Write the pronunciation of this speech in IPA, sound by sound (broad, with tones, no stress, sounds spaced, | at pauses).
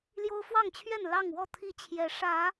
l j o˦ ʊ̯ f w ɑ˥˨ ŋ t͡ɕʰ ɥ ɛ˥˨ n l ɑ˥˨ ŋ w ɔ˥˨ t̪ʰ i˥˨ t͡ɕʰ j ɛ˨˦ ʂ ä˨˦